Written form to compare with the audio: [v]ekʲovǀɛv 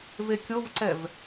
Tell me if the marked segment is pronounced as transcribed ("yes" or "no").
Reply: yes